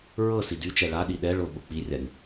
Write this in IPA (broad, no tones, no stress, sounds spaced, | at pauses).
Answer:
ɹ ɤ s i d y t͡ʃ ɛ ɭ a ɗ i ɗ ɛ ɭ ʊ ɓ ʊ k͡p i rʲ a nʲ